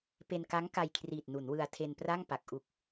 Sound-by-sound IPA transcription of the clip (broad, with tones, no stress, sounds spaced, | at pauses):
p e˧ n k a˦˥ ŋ k a˧ j kʰ r iː˨˩ t̚ n u˩˦ n w ɯ˧ a̯ tʰ e˧ n p r a˥˩ ŋ p a˨˩ k̚ ʔ u˨˩ k̚